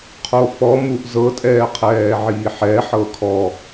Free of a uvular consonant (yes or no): no